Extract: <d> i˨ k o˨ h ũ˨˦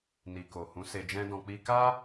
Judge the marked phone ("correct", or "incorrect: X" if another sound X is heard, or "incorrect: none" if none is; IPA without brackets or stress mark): incorrect: n